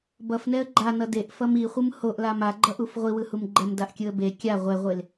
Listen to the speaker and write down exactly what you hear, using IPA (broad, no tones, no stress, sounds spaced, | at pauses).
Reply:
b ʌ f n ɛ ə̯ ɡ͡ǃ a n ʌ d e ʔ f ʌ m i χʷ ɯ m h o ʔ l a m a ɡ͡ǃ ʌ ʔ u f ʁʷ i w ɯ h u m ɡ͡ǃ ɛ m d a ʔ kʲ ɯ ə̯ b e kʲ a ʁʷ ɛ ʁʷ e l